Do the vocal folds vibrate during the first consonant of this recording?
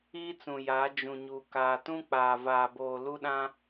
no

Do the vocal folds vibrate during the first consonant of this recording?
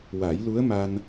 yes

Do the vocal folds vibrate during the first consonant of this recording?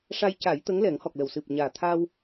no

